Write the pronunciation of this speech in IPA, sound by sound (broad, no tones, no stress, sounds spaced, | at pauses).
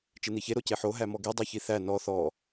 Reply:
t͡ʃ e n̪ i ç e ɾ o c e ħ o ɦ æ m ɔ ɡ i dˤ æ ç i θ æ n ɔ θ ɔ